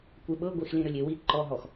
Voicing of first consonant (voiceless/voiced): voiceless